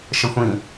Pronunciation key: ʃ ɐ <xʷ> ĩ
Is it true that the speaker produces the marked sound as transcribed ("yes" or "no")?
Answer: yes